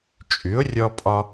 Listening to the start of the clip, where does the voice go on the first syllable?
rising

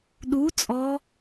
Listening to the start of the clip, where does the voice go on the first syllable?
rising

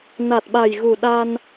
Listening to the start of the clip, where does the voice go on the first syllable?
low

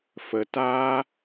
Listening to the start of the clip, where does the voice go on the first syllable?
low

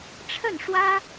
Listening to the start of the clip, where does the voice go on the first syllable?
falling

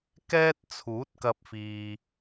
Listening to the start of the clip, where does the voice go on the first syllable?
high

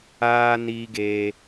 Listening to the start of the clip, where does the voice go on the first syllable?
high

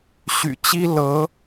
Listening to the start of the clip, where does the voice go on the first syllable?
low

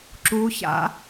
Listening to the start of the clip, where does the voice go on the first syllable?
rising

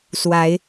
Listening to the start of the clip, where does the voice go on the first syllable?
rising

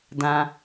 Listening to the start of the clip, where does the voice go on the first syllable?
high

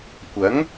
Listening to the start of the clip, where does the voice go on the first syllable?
rising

